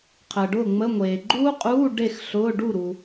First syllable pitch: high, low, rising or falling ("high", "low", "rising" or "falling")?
low